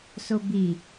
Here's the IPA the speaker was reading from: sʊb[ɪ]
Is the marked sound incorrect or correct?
incorrect: i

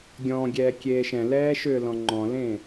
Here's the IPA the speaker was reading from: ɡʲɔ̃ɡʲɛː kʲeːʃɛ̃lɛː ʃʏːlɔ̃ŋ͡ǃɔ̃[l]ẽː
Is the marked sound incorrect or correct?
correct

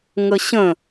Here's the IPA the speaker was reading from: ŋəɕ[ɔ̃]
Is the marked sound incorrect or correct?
incorrect: ə̃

